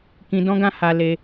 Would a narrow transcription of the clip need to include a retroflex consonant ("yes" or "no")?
no